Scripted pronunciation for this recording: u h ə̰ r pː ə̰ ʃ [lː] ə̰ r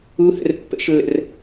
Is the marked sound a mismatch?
no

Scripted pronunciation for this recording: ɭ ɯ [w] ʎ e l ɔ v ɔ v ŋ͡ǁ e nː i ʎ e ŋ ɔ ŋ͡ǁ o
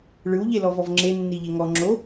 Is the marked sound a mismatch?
no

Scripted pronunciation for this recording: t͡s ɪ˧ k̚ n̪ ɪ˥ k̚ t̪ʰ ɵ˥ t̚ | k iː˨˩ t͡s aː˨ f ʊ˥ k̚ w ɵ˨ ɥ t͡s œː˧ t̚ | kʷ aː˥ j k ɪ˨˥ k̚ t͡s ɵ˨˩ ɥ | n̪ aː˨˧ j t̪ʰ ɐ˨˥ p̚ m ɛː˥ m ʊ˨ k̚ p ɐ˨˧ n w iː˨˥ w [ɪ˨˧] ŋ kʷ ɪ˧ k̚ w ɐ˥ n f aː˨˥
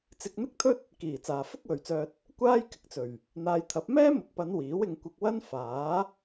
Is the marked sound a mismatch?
yes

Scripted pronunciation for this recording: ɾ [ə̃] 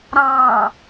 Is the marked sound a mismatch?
yes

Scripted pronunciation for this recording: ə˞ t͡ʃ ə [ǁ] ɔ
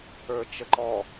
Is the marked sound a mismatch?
yes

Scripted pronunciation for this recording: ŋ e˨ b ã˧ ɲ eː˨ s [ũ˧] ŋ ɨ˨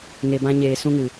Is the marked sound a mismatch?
no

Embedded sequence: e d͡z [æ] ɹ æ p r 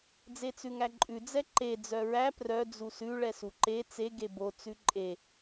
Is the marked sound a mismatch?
yes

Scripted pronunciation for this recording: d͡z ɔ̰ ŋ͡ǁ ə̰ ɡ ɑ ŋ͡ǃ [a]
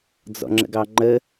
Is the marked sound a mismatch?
yes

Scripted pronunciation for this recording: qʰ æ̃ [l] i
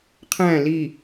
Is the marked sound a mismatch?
no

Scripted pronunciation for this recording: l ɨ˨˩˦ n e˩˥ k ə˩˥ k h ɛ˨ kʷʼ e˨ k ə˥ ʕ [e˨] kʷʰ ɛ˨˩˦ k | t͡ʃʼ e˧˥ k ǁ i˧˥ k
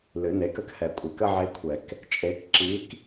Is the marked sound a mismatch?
yes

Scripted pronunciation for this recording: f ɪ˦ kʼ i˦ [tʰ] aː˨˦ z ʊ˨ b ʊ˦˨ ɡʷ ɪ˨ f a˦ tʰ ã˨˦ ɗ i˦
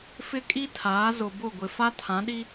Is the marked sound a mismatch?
no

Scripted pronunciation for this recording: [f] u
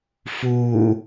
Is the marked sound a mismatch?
no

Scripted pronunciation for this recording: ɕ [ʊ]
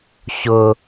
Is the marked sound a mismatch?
no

